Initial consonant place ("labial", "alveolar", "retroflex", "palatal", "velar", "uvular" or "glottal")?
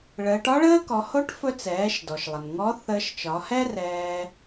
retroflex